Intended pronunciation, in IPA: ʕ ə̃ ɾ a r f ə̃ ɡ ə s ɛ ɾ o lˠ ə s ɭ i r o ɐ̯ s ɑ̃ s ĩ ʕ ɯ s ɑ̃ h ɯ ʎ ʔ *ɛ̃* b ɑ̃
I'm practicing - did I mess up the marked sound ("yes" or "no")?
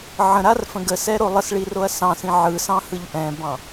no